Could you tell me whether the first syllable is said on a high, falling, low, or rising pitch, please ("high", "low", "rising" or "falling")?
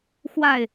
falling